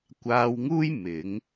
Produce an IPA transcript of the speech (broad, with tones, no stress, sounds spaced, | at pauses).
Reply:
kʷ aː˧ w ŋ uː˥ j m ɪ˨˥ ŋ